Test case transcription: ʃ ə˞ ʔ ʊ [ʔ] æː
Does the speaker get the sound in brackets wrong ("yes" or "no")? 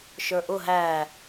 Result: yes